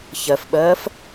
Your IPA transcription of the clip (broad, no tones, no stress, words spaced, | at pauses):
çɜfɓɜːf